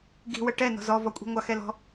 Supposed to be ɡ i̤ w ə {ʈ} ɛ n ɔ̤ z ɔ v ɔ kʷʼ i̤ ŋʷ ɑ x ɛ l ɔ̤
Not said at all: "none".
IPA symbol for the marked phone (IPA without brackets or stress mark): ʈ